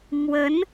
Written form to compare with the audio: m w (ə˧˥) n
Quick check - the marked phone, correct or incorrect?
correct